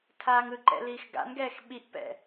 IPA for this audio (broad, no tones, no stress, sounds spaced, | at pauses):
tʰ aː ŋ ɯ ǃ ɛ̰ l iː x ɡ a̰ n ɡ ɛː x ɓ i ʔ p ɛ̰